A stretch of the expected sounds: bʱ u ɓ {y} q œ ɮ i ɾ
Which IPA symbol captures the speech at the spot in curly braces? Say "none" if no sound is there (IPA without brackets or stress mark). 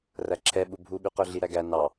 y